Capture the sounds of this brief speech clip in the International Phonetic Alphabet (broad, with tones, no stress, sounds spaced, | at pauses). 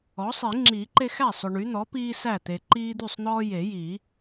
ɔ˩˥ sˤ i˨˩˦ ŋ͡ǁ iː˨˩˦ ǃ e˦ x æ˥˩ sˤ ɵ˨ ɳ y˩˥ n̪ ɔ˩˥ p iː˦ s æ˥˩ t̪ e˨ ǃ iː˦ d̪ y˥˩ sˤ n̪ ɔː˦ j e˨˩˦ j i˨˩˦